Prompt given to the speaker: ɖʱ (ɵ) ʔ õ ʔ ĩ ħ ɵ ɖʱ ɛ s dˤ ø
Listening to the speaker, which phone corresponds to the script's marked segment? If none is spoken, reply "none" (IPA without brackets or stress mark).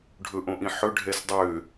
ɵ